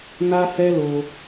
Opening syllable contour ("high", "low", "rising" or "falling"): high